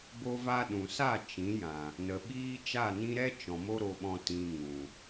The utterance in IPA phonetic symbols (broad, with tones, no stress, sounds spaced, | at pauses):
b o˧ v a˧ ɗ ũ˨ s a˦˨ t͡ʃ ĩ˨˦ j ã˨ | n ə˨ ɓ iː˦ t͡ʃ a˦˨ n ĩ˦ ɾ ɛ˦ t͡ʃ ɔ̃˨ m o˦ ɾ o˧ ɓ ɔ̃˧ t ĩ˧ ŋ ũ˨